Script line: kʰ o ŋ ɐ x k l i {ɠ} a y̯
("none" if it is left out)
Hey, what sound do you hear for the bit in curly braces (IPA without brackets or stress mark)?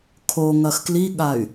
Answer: ɠ